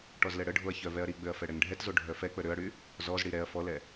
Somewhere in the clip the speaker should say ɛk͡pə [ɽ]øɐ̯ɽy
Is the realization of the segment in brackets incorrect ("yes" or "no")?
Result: yes